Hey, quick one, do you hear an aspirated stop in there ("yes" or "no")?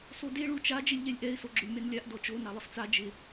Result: no